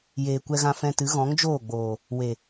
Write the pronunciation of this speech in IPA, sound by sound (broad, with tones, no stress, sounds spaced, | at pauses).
j eː˨ kʷ ɛ˧ ɣ ã˧ f ɛ̃˧ t ɨ˨˦ ɣ ɔ̃˨˦ ŋ d͡ʒ oː˦˨ ɡ͡b oː˨ | w e˨